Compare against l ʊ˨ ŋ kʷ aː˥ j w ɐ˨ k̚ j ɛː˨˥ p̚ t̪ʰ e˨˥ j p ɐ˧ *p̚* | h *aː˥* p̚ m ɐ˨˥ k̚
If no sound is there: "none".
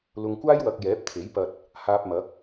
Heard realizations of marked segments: t̚, aː˧

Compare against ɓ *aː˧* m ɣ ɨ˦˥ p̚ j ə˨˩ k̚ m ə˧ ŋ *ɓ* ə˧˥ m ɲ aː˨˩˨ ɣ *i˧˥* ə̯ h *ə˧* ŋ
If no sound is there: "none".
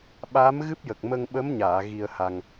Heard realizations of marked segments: aː˧˥, ɓ, i˧, a˧

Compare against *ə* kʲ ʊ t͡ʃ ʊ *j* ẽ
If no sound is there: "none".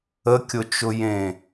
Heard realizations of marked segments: ə, j

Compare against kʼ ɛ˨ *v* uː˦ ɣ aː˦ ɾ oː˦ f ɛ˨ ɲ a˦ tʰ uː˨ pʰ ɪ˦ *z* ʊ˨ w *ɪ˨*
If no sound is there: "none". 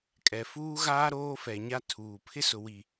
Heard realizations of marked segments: f, s, i˨

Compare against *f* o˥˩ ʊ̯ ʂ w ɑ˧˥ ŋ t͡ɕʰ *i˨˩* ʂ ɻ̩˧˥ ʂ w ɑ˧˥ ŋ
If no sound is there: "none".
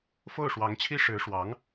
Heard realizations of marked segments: f, i˥

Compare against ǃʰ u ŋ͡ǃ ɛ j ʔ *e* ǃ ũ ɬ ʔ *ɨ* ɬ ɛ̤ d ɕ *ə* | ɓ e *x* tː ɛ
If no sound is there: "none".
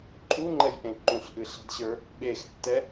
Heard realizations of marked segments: ẽ, ɨ, ə˞, x

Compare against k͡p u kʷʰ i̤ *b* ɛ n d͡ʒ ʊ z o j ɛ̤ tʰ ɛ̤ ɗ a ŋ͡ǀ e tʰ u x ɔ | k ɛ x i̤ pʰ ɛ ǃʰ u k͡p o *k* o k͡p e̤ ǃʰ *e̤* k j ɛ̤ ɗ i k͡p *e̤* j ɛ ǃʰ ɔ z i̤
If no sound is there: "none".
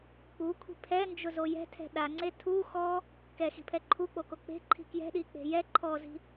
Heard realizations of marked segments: pʰ, k, i̤, e̤

